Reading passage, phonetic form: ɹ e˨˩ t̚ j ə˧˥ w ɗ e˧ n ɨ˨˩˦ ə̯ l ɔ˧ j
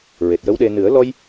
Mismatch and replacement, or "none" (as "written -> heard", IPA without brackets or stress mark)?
none